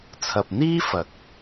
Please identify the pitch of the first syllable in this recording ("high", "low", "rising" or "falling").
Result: low